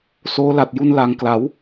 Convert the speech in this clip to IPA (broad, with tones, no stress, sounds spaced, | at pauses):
s oː˦˥ l a˨˩ t̚ j u˧ n l a˩˦ ŋ k l a˩˦ w